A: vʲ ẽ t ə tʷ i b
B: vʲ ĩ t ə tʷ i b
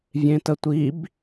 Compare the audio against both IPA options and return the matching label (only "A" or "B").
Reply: A